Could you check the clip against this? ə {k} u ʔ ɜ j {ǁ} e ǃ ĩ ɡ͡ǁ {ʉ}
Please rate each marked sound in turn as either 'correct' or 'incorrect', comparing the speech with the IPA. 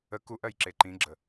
correct, correct, incorrect: ə

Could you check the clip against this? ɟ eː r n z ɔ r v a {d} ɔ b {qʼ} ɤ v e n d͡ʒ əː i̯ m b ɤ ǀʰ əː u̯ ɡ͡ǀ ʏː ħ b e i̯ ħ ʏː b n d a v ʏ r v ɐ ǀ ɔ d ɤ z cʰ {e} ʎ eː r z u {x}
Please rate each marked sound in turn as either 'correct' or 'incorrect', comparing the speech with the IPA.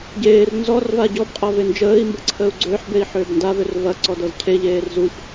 incorrect: ɟ, correct, correct, incorrect: ç

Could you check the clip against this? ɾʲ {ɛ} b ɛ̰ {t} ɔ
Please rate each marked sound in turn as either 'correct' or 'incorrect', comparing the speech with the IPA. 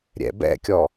incorrect: ɛ̰, incorrect: kʲ

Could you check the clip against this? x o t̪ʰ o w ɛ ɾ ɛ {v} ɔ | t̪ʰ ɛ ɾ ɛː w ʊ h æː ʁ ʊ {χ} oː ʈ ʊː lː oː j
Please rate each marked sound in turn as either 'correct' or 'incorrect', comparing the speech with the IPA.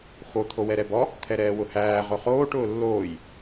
incorrect: b, correct

